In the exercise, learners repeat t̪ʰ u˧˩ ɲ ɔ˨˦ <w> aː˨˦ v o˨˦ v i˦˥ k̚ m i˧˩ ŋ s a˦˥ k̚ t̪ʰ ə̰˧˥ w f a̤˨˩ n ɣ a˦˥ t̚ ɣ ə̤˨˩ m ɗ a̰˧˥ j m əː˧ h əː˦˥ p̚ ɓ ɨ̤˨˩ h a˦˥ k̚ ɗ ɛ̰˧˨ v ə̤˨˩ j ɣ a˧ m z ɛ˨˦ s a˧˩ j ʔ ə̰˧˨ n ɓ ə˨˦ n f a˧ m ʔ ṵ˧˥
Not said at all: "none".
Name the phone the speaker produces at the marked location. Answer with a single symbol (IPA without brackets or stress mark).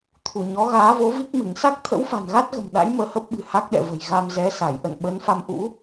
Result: ɣ